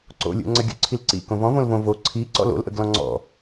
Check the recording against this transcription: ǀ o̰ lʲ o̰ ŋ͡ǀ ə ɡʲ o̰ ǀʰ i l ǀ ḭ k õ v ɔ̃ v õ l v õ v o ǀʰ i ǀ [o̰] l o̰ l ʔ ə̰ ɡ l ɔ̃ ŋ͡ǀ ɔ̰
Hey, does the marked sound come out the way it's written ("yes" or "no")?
no